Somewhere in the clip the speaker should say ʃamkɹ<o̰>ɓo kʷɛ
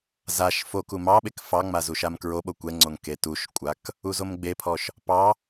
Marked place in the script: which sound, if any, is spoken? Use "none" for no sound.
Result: o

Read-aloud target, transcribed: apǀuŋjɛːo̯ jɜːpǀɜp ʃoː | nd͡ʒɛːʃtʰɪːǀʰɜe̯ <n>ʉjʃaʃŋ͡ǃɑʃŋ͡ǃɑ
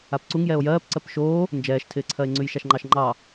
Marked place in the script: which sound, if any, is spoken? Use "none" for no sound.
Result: ŋ͡ǀ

